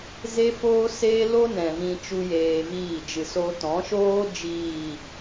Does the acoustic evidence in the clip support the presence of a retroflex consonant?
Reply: no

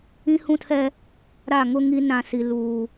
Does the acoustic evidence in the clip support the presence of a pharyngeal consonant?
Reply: no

